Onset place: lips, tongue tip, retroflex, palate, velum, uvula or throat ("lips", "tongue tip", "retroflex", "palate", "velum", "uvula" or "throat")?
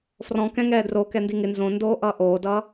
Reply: lips